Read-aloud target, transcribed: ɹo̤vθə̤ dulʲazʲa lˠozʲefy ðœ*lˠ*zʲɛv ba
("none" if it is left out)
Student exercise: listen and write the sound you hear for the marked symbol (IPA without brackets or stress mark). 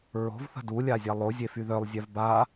lˠ